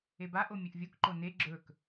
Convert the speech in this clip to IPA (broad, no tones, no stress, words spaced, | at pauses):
ebaʔo mʲɵʔvʲokǃo ne ɡ͡ǁɵk